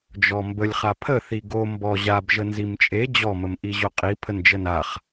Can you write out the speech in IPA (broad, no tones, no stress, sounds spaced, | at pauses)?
d͡ʒ ɔ m b ə lʲ χ a pʰ ə θ i ɡ o m b ɔ ʑ a b ʒ ə n z i m t͡ʃʼ e d͡ʑ ɔ m ə m ʔ i ʑ o qʼ i pʰ ə n d͡ʒ ə n a χ